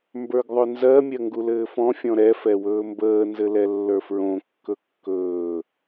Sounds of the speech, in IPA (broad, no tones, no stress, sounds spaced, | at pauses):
m b ə˞ ɡ ðˤ ɵ n z ɜ mʲ ɜ ŋ ɡ u l ɘː f ɔ̃ fʲ ɔ̃ ɾ ɛ f ɛ w ɵː m b əː n z ɘ l ɛ lː ə˞ f ɹ õ kː ɵ kː ɵː